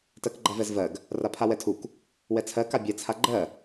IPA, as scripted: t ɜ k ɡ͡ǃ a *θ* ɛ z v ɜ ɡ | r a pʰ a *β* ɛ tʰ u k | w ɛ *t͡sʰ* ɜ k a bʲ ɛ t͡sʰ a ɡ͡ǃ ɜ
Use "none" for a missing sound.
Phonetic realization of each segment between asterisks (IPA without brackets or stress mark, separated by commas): v, w, t͡sʰ